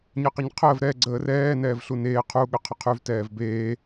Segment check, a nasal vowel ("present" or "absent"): absent